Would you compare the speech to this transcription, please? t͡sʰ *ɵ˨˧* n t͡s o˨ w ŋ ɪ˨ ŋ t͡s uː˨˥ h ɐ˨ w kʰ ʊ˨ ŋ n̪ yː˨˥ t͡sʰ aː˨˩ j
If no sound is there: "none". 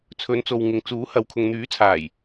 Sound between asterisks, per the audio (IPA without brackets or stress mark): ɵ˨˧